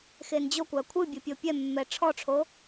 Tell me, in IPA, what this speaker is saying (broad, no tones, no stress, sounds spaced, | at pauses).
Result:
x e n d͡ʑ o kʷ a kʷʰ ɨ bʲ o pʲ o pʲ ɛ mː ɛ ʈ͡ʂʰ ɔ ʈ͡ʂʰ o